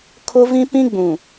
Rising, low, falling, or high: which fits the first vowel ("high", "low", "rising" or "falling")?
high